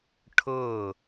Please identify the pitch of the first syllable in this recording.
falling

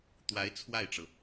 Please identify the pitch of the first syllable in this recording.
rising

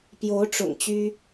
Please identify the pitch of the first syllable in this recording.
rising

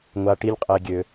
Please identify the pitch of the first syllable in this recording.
low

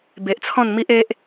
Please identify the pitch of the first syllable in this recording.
low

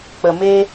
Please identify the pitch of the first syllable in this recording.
low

